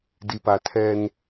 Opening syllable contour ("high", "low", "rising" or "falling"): low